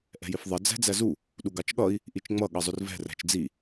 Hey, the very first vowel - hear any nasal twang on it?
no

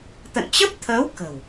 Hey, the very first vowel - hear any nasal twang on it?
no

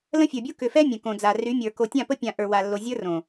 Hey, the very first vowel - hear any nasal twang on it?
yes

